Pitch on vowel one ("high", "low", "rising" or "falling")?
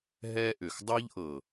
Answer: high